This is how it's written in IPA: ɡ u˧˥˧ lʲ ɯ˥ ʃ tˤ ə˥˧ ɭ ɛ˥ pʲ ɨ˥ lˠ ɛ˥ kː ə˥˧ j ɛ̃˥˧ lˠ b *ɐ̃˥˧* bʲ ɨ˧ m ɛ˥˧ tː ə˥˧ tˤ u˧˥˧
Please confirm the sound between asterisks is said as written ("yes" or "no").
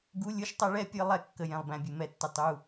no